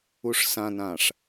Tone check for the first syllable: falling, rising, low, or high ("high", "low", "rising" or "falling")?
low